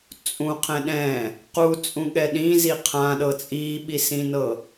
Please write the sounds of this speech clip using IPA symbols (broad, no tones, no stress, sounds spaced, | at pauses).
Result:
t͡sʼ ũ qʰ ɛ̃ ɗ ɛ̃ | q u t͡sʼ ũ ɠ ɛ ɗ ĩ z i qʰ ã ɗ ɤ t͡sʼ i ɓ i s ĩ n ɤ